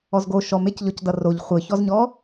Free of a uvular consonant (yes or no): no